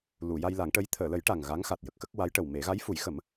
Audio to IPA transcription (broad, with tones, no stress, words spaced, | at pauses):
lu˨˩˨ ja˧jla˨˩˦ŋʈə˧˥j t̪ʰəː˨˩˨lə˨˩˦j ʈa˨˩ŋ ɣa˧˥ŋ xa˨˩t̚jə˨˩k̚xə˦˥k̚ wa˧˥jʈə˨˩wme˨˩˦ ɣa˧˥jfu˨˩˦jxə˨˩˦m